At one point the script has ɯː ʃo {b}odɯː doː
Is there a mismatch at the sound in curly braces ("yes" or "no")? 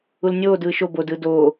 no